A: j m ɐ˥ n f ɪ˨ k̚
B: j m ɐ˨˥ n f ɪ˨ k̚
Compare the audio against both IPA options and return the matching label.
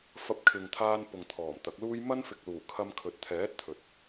A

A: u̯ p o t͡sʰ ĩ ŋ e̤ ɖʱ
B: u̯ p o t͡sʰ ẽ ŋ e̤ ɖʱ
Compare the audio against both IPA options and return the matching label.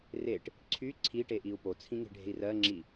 A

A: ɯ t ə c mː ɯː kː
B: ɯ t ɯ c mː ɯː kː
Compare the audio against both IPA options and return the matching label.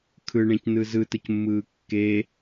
A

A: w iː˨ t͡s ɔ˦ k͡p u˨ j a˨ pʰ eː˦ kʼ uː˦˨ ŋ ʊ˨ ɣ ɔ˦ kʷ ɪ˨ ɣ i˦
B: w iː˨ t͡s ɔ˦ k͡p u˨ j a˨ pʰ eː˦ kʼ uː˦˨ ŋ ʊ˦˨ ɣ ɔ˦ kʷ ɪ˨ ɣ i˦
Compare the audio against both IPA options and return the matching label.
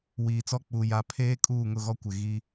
B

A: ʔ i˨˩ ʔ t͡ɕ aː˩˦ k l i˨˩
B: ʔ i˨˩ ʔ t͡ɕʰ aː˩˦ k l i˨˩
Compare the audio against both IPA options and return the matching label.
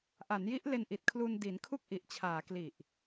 B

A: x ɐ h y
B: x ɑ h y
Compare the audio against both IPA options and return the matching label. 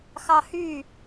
B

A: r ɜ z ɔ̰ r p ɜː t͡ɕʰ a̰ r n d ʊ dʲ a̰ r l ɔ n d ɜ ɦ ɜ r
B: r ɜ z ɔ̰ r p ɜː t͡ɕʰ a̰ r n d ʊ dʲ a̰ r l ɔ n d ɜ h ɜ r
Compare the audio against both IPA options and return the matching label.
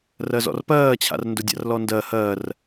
B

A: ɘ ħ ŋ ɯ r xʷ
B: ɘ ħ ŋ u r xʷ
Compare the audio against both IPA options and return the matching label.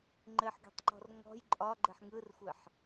A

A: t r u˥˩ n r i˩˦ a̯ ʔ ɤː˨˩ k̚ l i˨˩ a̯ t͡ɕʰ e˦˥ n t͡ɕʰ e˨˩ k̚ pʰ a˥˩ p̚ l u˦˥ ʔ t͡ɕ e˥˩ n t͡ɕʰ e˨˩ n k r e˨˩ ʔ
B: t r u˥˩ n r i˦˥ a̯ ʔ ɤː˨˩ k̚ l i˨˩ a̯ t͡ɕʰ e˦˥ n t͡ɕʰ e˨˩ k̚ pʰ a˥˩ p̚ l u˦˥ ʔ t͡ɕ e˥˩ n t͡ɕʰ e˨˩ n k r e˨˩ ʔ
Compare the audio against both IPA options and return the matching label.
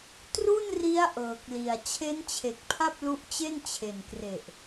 B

